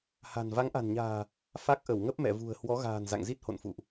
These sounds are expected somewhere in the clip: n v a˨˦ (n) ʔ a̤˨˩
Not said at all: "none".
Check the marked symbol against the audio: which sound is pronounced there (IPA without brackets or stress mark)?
ŋ